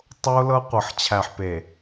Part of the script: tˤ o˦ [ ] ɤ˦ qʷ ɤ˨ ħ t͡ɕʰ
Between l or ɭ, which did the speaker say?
l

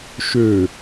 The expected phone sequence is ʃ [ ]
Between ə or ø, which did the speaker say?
ø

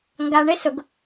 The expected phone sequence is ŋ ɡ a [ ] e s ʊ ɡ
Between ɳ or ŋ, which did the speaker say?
ɳ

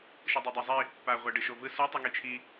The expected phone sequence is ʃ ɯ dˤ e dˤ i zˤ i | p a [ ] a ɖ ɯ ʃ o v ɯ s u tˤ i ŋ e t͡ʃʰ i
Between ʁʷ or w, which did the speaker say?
ʁʷ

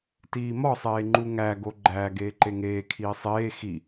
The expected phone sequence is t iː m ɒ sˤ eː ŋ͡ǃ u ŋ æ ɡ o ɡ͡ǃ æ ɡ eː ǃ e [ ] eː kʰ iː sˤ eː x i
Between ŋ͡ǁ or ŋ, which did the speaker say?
ŋ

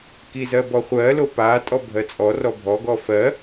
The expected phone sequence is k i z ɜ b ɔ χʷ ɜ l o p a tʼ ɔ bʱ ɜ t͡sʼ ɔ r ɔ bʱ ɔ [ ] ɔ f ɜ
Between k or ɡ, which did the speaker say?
ɡ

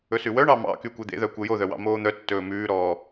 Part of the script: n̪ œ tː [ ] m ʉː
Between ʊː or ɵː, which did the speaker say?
ɵː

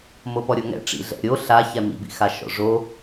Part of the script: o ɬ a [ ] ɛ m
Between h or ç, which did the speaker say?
ç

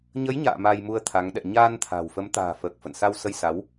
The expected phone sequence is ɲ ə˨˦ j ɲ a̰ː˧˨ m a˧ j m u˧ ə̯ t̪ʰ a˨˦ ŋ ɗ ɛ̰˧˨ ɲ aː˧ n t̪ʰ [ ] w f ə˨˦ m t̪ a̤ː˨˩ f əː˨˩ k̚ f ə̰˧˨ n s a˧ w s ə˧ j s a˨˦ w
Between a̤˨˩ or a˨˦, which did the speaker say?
a̤˨˩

